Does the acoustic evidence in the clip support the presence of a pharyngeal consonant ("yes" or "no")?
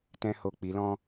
no